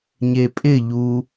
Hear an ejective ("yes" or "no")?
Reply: yes